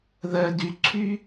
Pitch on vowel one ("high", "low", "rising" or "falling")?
low